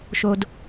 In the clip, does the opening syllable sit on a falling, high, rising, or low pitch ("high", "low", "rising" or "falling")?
low